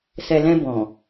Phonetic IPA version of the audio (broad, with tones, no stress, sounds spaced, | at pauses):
s ɛ˨ l ɛ̃˧ b ɔ̃˨